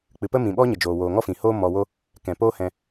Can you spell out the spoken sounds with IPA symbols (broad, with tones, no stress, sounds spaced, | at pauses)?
k͡p ɨ˨ p ə˦ m ĩ˨ ɓ ɔ˦ ɲ ə˨ d͡ʒ oː˨ w oː˨ ŋ ɔ˦ f ĩ˨ h oː˦ m ɔ˧ w o˦ | k ɛ̃˨ p oː˦ h ɛ̃˧